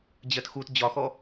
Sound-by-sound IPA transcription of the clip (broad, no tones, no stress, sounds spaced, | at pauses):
d͡ʑ ɜ t x u t d͡ʑ ɒ x ɔ